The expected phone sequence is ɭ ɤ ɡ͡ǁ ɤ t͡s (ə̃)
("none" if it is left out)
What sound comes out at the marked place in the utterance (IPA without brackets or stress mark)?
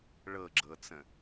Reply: ə̃